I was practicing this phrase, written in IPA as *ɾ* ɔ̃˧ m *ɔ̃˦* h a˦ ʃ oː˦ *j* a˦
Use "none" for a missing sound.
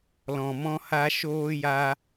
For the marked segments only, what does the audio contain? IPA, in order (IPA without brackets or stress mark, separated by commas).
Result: l, ɔ̃˦, j